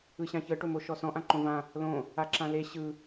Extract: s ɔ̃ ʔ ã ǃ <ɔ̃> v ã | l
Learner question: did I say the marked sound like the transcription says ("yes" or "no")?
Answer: no